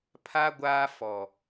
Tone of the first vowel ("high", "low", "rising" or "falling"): high